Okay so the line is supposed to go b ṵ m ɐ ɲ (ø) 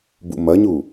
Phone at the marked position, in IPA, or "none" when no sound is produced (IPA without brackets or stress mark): u